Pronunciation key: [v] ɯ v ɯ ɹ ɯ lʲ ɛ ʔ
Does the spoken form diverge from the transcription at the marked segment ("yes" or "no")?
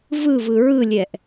no